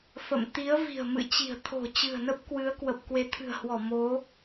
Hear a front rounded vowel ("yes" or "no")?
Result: no